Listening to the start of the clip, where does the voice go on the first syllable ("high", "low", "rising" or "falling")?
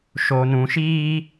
low